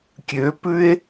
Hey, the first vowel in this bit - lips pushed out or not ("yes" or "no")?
yes